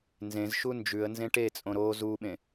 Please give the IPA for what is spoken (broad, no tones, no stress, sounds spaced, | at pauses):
n z ẽ z ʃ u n d͡ʒ ʉ ə̯ n z ẽ ʈ e t͡sʼ õ ɾ o z u ɓ ẽ